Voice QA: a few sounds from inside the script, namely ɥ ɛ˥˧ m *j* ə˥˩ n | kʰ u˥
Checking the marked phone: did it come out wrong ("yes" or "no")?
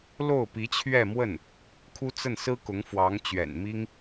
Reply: yes